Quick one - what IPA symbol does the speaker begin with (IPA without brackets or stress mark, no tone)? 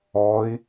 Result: ɔ